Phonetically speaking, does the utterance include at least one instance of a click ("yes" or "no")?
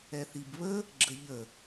yes